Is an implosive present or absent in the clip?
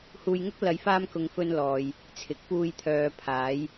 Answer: absent